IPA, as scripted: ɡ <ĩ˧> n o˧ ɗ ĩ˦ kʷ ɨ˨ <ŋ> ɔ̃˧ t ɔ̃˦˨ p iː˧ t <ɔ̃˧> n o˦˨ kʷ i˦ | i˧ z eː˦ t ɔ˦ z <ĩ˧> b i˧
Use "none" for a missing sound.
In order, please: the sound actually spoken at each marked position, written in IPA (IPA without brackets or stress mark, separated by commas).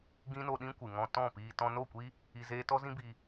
ĩ˦, ŋ, ɔ̃˧, ĩ˦